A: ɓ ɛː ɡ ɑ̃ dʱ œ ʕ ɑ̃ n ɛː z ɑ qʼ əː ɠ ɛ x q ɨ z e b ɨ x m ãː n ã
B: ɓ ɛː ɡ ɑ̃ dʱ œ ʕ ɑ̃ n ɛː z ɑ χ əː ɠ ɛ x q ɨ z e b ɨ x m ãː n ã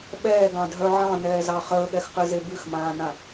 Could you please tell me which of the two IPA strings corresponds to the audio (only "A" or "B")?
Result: B